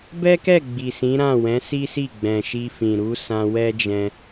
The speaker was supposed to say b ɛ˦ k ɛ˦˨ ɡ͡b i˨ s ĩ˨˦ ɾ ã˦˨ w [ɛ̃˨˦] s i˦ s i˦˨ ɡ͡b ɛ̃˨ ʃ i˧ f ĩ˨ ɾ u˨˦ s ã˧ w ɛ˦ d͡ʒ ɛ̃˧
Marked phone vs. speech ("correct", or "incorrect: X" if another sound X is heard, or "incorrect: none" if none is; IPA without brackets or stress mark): correct